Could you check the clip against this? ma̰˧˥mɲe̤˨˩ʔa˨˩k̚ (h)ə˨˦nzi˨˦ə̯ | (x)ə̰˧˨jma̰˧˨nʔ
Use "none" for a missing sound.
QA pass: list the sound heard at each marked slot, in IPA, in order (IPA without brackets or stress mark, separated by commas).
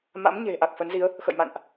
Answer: f, x